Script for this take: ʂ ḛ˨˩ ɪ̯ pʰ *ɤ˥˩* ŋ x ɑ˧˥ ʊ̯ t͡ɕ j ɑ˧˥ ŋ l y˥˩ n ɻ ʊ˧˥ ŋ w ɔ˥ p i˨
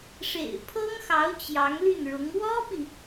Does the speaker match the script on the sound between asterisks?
no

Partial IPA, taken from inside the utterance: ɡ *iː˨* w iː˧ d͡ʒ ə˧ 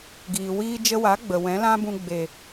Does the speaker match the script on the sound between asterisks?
yes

